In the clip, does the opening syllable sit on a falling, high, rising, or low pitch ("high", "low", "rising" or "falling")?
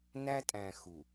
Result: high